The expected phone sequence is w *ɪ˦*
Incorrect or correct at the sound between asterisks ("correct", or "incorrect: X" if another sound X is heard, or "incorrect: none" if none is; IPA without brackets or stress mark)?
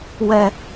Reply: incorrect: ɛ˦